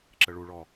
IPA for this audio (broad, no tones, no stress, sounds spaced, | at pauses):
ǁ ə ɭ u ɭ ɔ